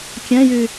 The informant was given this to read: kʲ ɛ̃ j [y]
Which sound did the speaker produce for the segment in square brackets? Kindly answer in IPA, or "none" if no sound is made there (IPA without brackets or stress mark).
y